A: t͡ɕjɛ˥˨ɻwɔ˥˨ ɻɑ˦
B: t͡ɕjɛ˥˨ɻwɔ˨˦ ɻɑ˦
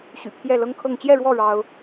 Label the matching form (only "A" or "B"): A